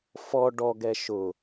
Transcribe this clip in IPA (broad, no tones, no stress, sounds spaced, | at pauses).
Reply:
f ɔ ɖ ɔ ɡ ɛ ʃ ʊ